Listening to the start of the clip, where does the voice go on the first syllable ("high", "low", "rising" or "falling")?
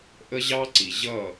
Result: high